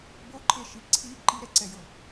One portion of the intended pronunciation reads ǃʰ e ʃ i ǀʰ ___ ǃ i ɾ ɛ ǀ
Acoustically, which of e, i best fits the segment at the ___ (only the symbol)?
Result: i